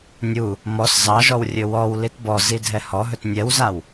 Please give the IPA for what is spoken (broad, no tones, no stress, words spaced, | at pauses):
nʲu | mɔs zɑʒɔw rʲɵwɔw litbɔ zidʱɛhɔɦɵt nʲɛwzaw